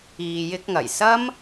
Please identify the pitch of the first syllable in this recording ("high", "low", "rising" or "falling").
low